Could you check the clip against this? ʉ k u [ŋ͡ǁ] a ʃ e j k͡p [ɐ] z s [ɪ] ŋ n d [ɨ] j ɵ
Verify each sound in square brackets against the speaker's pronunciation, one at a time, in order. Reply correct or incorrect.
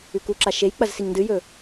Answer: incorrect, correct, incorrect, correct

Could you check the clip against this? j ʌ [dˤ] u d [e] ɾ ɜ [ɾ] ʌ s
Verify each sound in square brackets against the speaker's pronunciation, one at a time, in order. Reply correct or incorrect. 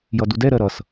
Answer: incorrect, incorrect, correct

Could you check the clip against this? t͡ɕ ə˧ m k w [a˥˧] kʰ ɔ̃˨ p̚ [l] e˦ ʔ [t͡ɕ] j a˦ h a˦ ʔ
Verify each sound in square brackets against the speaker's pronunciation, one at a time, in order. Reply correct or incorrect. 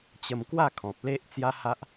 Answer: correct, correct, incorrect

